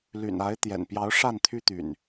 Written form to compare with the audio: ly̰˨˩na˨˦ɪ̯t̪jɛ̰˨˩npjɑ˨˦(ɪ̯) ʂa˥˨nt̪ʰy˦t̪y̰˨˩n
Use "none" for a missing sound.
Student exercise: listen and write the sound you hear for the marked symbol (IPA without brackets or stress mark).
ʊ̯